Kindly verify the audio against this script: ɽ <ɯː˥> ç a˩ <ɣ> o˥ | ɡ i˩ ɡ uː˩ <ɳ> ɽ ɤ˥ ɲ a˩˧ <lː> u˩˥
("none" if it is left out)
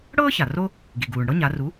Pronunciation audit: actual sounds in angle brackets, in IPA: ɤː˥, r, ɳ, r

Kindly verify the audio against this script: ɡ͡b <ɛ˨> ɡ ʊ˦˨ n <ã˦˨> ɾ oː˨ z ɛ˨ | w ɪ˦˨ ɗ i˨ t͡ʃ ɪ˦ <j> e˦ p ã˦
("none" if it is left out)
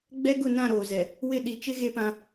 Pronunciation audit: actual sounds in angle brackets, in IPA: ɛ˦, ã˦˨, ɣ

